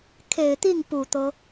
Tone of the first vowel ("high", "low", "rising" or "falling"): low